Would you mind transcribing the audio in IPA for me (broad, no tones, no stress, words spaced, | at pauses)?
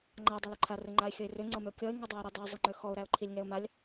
ŋ͡ǃa dˤalʏǃʰa rʏŋ͡ǃaɪ̯xʲɤɪ̯rʏ ŋ͡ǀɤmʏʊ̯kʲɔɪ̯ ŋɔdˤaɪ̯ɾɛdˤæ zˤiŋ͡ǃøxɔʊ̯ ɾæʊ̯ǃʰilʲŋɛʊ̯malʲ